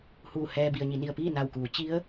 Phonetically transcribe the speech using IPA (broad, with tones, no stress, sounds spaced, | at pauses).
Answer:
h uː˧˩ h ɛː˧ b i˩ ə̯ ɲ i˩˧ n i˩ ə̯ p iː˥˨ n a˧˩ w k uː˩˧ t͡ɕ i˧˥ ə̯